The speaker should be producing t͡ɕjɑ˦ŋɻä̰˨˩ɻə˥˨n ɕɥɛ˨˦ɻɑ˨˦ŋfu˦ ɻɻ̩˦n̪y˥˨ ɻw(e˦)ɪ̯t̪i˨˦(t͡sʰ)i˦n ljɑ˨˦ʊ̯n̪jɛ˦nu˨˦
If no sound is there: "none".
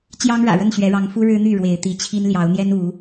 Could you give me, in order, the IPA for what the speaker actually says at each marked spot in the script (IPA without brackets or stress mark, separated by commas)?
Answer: e˨˦, t͡ɕʰ